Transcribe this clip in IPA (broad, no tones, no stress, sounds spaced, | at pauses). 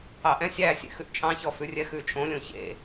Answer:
ɑ ʔ ɛ̃ sʲ æ sʲ ḛ x ʉ ʔ t͡ʃʼ ɑ̃ ç ɔ f ʉ rʲ ɛ x ʉ t͡ʃʼ õ lʲ õ ç ḛ